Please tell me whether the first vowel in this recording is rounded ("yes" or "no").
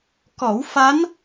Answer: yes